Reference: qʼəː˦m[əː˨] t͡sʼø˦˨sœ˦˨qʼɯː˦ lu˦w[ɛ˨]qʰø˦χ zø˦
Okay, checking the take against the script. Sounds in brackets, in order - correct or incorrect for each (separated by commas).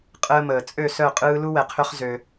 correct, correct